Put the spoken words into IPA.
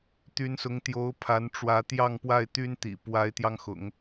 t̪ y˧˥ n s ʊ˧˥ ŋ t̪ j o˧˥ ʊ̯ pʰ a˧˥ n ʈ͡ʂ w ä˧˥ t̪ j ɑ˥˧ ŋ p w a˥˩ ɪ̯ t̪ y˥ n t̪ ḭ˨˩ p w a˧˥ ɪ̯ t̪ j ɑ˧ ŋ x ʊ̰˨˩˦ ŋ

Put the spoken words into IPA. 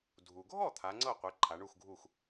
dʱ u˩ ɡʱ ɔ˥˩ t̪ʰ a˩˥ ŋ͡ǀ ɤ˥˩ qʷ e˩˥ ǃʰ a˩˥ ɳ u˥˩ x ɡʱ u˥˩ x

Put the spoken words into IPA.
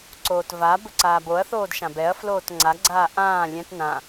ǀ oː t v a b ɵ ǀ aː b o ɐ̯ θ oː d ʃ ã b ɛ ɐ̯ f l oː t ŋ͡ǀ a ɡ͡ǀ aː ʔ ãː lʲ ɛ̃ t n ã

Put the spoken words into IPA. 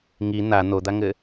ŋ i n̪ a n̪ o d̪ a ŋ ɘ

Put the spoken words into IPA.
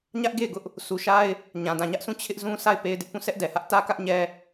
ɲ ä˦ ʔ ɡ e˦˨ ɪ̯ ɡ ʊ˦ ʔ | sʰ u˨ ʃ a˦ ɪ̯ | ɲ ã˨ d ã˨ ɲ ä˦ ʔ s ũ˦˨ t͡ɕʰ ɪ˦ ʔ z ũ˦ s a˦˨ ɪ̯ p e˦ ɪ̯ d ɪ˦ ʔ p ũ˦˨ s ɛ˦ ʔ d ɛ˨ h ä˦ ʔ t ä˦ k ä˦ ʔ ɲ ɛ˦

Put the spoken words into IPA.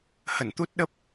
h ə˧˩ n t̪ u˦˥ t̚ ɗ ə˦˥ p̚

